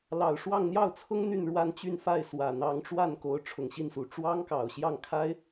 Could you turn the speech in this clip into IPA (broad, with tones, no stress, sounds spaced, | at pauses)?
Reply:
l ɑ˨˩ ʊ̯ ʂ w ɑ˥˧ ŋ n̪ j ɑ˥˩ ʊ̯ t͡sʰ ʊ˥ ŋ n̪ y˥˧ n ɻ w a˥˧ n t͡ɕ y˥˧ n f a˥˩ ɪ̯ s w ä˨˩ n̪ ɑ˧˥ ŋ ʈ͡ʂ w a˥˩ n k o˧˥ ʊ̯ ʈ͡ʂʰ ʊ˨˩ ŋ ɕ i˥˩ n s u˨˩ ʈ͡ʂ w ɑ˥ ŋ k ɑ˨˩ ʊ̯ ɕ j ɑ˥˩ ŋ kʰ a˥ ɪ̯